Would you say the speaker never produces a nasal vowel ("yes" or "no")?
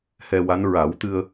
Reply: yes